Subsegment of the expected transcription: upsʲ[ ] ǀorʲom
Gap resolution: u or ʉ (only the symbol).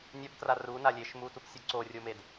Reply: u